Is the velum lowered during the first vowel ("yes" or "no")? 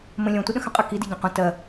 yes